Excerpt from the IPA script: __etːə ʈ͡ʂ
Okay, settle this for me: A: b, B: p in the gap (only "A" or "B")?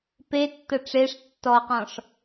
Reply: B